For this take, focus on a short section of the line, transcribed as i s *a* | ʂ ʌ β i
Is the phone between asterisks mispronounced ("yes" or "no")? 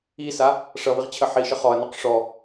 no